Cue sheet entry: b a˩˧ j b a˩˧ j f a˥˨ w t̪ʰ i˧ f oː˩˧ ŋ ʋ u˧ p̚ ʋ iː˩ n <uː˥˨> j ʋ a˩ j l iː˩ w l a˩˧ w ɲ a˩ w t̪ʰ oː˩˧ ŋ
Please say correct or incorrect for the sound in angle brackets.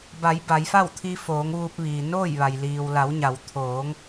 incorrect